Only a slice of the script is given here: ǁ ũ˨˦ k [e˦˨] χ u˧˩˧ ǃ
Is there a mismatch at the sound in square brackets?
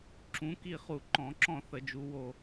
yes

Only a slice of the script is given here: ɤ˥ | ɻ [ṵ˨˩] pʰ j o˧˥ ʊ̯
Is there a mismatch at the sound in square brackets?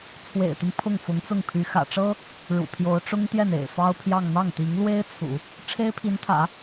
no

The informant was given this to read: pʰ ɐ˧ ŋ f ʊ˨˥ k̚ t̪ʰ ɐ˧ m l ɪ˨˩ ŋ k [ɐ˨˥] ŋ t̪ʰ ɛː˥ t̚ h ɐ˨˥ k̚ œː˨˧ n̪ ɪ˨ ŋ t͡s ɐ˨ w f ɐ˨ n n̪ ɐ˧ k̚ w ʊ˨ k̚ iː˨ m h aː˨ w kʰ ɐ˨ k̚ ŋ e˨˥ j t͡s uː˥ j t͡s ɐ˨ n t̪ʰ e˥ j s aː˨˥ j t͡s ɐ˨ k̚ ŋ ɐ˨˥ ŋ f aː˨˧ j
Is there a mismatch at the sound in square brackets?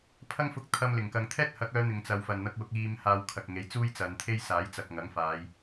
yes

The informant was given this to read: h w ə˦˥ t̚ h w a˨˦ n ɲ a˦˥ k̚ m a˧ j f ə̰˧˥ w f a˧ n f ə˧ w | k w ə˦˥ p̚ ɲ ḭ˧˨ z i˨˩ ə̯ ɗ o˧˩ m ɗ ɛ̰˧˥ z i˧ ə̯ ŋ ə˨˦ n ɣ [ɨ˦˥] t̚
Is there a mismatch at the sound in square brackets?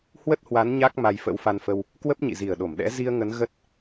yes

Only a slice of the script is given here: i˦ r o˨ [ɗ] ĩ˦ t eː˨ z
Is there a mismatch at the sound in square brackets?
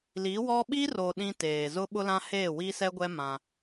no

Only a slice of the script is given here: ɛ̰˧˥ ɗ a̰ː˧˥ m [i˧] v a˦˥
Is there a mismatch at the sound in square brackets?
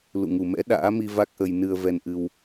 no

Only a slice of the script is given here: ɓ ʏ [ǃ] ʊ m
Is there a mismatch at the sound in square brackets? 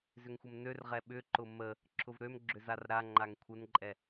no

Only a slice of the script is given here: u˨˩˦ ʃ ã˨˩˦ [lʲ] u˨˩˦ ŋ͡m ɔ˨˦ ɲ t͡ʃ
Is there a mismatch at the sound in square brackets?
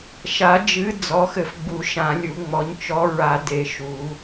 no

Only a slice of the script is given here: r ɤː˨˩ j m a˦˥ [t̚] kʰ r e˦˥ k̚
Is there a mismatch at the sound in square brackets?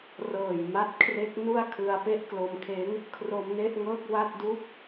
no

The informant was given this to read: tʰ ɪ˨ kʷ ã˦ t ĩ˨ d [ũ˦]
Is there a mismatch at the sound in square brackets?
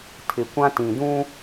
no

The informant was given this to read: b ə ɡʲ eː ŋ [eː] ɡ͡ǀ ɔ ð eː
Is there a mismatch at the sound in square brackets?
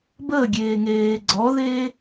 no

